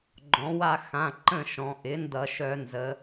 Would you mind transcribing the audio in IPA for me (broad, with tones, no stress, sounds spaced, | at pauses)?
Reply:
ɡ͡ǃ ɔ̃˩˧ w a˦˨ x ã˩˧˩ ǃ ə̃˦˨ ʃ ɔ̃˩˧ ʔ ɪ˩˥ n d ʌ˧˩˧ ʃ œ˧˩˧ n z ə˩˧